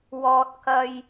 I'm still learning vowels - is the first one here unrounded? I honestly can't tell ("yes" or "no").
no